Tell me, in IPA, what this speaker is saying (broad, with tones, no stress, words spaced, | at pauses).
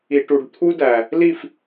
i˧ʈu˧ɖ t̪ʰu˦dæ˨ | li˦˨f